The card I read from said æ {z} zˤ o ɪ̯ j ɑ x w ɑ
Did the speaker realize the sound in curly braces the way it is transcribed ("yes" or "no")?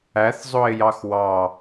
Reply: no